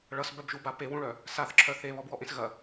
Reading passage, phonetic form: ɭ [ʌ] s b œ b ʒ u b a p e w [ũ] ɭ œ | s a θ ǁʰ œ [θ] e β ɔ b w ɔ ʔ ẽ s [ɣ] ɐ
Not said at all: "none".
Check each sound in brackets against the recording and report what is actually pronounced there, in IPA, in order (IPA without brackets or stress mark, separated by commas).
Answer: ʌ, ũ, θ, ɣ